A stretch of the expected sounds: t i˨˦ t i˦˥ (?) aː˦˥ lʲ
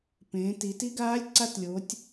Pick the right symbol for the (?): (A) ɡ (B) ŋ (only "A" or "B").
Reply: A